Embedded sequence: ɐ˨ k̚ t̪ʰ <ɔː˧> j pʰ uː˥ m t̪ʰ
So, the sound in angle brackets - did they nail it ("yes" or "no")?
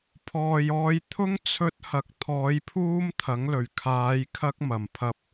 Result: no